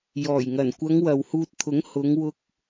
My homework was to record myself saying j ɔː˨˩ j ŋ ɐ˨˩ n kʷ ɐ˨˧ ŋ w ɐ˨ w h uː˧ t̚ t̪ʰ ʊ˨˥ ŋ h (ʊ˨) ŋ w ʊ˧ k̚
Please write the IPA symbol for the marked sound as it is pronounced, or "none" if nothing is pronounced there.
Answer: ʊ˨˧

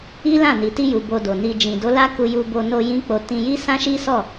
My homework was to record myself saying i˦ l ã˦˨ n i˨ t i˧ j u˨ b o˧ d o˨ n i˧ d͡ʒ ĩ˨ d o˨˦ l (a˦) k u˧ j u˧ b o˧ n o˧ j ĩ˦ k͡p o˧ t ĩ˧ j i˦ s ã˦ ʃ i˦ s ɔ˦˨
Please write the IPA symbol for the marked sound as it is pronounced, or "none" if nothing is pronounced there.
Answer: a˦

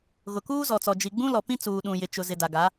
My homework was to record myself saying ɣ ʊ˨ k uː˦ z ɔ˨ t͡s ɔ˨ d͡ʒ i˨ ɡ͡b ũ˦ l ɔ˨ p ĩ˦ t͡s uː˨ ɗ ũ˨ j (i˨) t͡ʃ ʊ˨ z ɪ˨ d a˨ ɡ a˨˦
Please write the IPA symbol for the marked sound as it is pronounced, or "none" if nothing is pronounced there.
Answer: ɪ˨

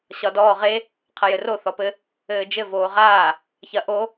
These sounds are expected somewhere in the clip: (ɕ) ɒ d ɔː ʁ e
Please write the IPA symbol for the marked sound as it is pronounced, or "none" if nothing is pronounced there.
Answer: ɕ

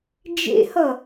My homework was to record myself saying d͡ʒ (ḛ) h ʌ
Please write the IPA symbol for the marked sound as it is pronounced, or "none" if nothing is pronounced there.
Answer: ḛ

